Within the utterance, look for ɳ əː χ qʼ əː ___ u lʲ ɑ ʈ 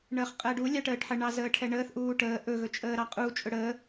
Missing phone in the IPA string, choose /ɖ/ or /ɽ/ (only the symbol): ɖ